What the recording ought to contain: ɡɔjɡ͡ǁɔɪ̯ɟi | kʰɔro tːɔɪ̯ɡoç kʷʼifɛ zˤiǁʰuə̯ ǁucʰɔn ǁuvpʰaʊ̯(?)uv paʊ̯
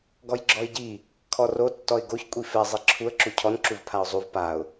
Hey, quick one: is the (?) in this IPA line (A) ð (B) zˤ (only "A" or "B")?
B